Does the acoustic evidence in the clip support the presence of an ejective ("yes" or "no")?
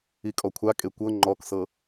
yes